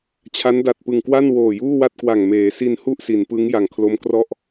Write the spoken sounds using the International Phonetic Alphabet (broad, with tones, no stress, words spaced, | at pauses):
t͡ɕʰa˦˥nda˨˩t̚ pɯ˨˩ŋkwa˥˩n woː˨˩juː˥˩wa˥˩t̚kwa˨˩ŋ meː˩˦ si˧nhu˥˩ʔ si˩˦npɯ˦˥ŋ ja˩˦ŋkʰlo˦˥mkrɔ˥˩ʔ